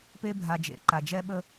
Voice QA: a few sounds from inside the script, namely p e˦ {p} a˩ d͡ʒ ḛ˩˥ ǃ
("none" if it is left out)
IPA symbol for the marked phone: bʱ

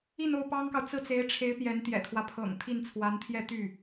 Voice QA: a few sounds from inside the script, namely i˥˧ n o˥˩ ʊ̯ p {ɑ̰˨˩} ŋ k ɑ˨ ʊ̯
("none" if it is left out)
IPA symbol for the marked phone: ɑ˥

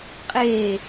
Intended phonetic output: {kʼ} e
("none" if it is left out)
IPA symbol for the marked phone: qʼ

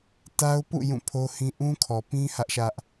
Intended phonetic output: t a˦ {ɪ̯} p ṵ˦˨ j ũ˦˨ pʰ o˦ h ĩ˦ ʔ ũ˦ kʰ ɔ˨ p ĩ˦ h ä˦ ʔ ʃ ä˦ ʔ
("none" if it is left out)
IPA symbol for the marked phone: ʊ̯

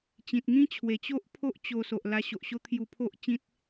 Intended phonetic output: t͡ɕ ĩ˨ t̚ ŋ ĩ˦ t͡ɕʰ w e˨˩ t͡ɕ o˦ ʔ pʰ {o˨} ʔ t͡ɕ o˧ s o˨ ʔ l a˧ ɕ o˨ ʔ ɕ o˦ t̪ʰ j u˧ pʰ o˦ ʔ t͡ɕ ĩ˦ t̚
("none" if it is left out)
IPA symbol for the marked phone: o˦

